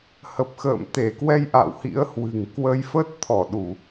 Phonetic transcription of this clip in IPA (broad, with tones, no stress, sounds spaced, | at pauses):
h ə˨˩ p̚ x ə̰ː˧˨ m t̪ e˧˩ k w ɛ˧ j ʔ a̰˧˨ w h ḭ˧˥ ə̯ h w ɨ̤˨˩ ŋ k w ə˧ j f ə˦˥ t̚ t̪ʰ ɔ˧˩ ɗ u˧˩˨